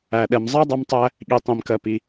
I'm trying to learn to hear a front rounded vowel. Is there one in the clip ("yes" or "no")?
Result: no